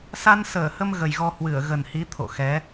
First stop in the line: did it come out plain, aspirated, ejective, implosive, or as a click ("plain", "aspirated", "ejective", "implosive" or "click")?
aspirated